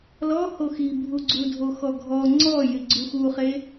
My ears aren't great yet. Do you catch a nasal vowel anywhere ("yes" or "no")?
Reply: no